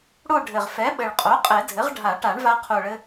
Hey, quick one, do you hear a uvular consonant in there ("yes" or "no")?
yes